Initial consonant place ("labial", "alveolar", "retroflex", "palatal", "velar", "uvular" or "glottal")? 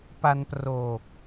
labial